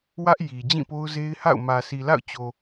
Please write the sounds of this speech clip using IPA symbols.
w ä˦ ʔ j i˨ d͡ʑ ĩ˦˨ p o˦ ʊ̯ z e˦ ɪ̯ h a̰˦˨ ʊ̯ m ä˨ sʰ i˨ l a̰˦˨ ʊ̯ t͡ɕ o˨

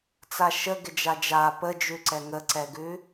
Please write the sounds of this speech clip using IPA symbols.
t͡s a ʃ ə ɡ ɪ d͡ʒ a d͡ʒ a p ə d͡ʒ ʉ ǀ ɛ ŋ ə ǀ ɛ ɡ ʉ

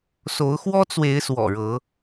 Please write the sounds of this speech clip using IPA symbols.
s o˨˦ ʊ̯ x w ɔ˦ t͡s w e˨˦ ɪ̯ s w ɔ̰˨˩ ɻ ɤ˨˦

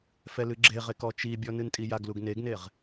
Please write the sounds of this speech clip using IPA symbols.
f ɛ l ɨ ɡ͡ǁ e ʁ e k ɔ t͡ʃ i bʲ ɔ n ɨ n tʼ i j a ɡ l u ɡ n e ɡ n e ʁ

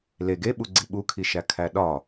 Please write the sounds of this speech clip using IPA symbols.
l e ɡ e ɓ u ɡ͡ǀ i ɓ u kʰ i ʃ æ kʰ æ ɗ ɒ

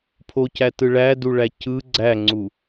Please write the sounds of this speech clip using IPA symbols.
pʰ o c æ t ɯ ɭ æ d u ɭ æ c ɯ ɡ͡ǀ æ ŋ͡ǀ u

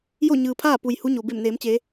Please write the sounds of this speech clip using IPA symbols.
j o˥˨ ɲ ɯː˩ pʰ aː˥˨ p u˩ j h u˧˥ ɲ o˩ b e˧˩ m n eː˩˧ m t͡ɕ eː˩˧

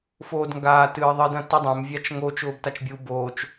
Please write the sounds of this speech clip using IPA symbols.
f oː d ŋ ɡ aː t ɨː ðˤ ɨ d ɐ̃ t i dˤ ɛ̃ m vʲ a t͡ʃ ŋ o t͡ʃ ʊː b t a t͡ʃ bʲ u b oː t͡ʃ

